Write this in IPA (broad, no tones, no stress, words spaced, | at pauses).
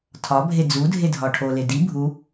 tʰɒbʱe d͡zudʱedʱɒ ʈʰole di bʱu